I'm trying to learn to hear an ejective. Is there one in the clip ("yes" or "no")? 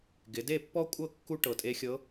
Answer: yes